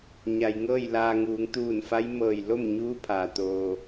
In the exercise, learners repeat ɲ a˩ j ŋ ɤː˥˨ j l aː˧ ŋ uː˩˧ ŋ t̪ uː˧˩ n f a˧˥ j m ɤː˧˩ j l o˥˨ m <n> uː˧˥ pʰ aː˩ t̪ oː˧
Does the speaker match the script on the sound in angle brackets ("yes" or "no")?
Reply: no